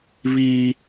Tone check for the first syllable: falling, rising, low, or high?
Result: high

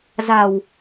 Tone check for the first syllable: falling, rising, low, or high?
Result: low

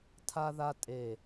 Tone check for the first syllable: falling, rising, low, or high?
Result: high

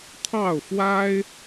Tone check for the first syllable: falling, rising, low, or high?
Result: falling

